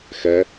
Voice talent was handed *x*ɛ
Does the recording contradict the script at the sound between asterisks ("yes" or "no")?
no